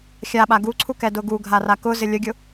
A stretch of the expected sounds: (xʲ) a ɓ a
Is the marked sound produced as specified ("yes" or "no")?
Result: yes